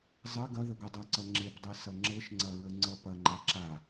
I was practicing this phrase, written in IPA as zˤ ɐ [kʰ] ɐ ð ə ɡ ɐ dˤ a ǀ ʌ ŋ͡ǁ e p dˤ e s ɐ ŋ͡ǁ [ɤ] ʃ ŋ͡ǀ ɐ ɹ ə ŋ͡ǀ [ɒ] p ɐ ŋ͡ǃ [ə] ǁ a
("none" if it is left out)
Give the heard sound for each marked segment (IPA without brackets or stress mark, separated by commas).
ɡ, ɤ, ʌ, a